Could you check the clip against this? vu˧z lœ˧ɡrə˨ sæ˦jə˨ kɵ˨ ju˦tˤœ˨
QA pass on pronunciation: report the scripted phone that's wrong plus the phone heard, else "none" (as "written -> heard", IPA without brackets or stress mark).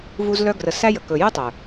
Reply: none